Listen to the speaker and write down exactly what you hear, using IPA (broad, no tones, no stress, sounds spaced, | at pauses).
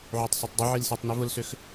ʕ u tˤ s u tˤ dˤ ʊ ʕ i l s i tˤ n i v ʊ l s ø x